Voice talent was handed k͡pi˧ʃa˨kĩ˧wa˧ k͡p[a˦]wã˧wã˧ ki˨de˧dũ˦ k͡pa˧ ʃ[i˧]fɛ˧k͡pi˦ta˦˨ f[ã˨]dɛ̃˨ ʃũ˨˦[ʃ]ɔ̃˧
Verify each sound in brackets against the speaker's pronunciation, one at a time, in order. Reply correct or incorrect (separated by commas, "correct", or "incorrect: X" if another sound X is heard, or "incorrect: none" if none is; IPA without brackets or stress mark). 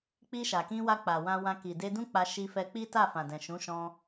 incorrect: a˨, correct, correct, correct